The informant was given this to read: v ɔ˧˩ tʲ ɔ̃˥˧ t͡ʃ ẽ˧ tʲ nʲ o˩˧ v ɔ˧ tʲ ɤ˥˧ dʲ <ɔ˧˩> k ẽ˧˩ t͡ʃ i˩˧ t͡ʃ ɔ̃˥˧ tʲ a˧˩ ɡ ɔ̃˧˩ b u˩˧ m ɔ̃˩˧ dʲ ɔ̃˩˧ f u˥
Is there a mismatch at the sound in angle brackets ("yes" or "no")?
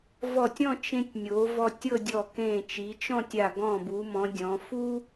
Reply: no